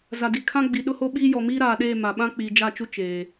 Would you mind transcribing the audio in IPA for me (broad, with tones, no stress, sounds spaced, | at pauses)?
z a˨ d i˨ kʰ ã˦ ɡ͡b i˨ ɗ ʊ˦ h o˦ ɓ iː˦ j ɔ˨ m iː˦ ɾ aː˨ ɗ eː˦˨ m a˨ ɓ ã˦ k͡p i˨ d͡ʒ a˦˨ t͡ʃ u˦ t͡ʃ eː˨